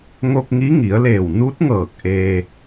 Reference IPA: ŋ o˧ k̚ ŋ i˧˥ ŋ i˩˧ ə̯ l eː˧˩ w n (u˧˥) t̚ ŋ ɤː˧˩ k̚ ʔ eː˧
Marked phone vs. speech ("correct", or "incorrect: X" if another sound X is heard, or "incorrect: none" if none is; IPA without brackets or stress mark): correct